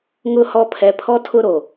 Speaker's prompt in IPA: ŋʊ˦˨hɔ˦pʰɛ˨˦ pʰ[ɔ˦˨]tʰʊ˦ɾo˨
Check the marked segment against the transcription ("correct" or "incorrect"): incorrect